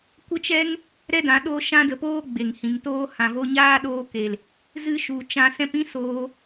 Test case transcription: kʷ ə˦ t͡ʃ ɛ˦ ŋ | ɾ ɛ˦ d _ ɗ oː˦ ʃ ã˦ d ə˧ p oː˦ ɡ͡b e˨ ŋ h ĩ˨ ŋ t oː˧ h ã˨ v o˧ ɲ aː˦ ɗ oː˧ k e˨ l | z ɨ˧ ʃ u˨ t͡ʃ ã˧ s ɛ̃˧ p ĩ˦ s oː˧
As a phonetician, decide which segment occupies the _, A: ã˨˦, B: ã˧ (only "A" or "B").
A